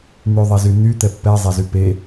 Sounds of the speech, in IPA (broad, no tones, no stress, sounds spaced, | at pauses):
n̪ y ðˤ ɛ z y n y t̪ ɛ pː ɛ zˤ ɛ z y p e